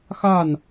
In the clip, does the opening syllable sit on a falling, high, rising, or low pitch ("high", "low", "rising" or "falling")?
falling